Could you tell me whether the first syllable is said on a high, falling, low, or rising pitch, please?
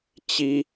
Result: high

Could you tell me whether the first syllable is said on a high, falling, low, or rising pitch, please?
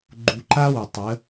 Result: low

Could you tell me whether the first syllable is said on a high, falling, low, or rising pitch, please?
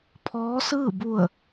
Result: rising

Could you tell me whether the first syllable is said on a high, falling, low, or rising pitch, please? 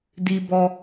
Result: high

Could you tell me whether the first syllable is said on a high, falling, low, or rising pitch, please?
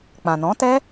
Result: low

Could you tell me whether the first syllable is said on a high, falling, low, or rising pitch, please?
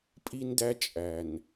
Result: high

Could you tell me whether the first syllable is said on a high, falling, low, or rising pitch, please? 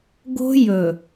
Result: high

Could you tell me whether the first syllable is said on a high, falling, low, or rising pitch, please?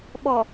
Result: low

